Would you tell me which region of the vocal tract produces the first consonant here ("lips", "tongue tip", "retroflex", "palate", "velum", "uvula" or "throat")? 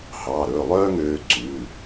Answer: throat